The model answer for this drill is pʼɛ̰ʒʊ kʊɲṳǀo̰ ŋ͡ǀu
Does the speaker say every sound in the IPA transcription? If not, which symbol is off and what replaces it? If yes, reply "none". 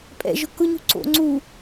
none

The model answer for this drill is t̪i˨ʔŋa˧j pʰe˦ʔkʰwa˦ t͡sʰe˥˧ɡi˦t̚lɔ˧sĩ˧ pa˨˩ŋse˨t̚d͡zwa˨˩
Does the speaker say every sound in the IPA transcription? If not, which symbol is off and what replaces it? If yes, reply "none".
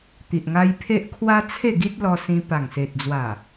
none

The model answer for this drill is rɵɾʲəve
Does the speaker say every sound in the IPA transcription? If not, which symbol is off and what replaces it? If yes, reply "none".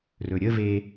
none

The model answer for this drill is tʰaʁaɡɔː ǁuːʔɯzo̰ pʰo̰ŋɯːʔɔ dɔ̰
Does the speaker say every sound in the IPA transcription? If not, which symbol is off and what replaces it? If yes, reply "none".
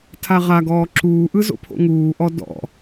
ɯː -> uː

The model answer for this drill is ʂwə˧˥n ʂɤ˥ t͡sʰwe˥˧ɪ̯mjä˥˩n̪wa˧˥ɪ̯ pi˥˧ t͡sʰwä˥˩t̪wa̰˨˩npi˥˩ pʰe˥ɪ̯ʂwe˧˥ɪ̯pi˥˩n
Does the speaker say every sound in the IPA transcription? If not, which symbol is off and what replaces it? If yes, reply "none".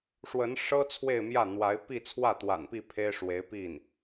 none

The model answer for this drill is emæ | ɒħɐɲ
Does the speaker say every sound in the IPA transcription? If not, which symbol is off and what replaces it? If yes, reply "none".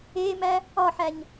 ɐ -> æ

